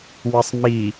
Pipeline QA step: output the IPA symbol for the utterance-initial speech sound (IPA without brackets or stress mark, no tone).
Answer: w